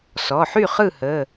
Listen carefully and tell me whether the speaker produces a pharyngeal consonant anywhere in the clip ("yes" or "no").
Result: yes